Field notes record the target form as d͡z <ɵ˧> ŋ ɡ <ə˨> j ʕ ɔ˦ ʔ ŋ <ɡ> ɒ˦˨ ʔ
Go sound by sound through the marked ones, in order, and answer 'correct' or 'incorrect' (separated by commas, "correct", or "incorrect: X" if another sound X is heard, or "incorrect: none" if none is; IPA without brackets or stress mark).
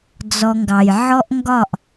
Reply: incorrect: ɔ˧, incorrect: ɑ˨, correct